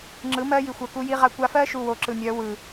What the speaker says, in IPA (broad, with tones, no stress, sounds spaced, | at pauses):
ŋ͡ǁ ɯ˨˦ m ɜ˦ j i˨ xʷ ɜ˨ k u˦ j i˦ ʁ a˦ kʷ a˦ f ɜ˦ ʃ u˨ w o˨ ǁ ɯ˨ mʲ œ˨˦ w ɯ˨